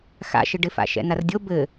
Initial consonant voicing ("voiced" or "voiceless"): voiceless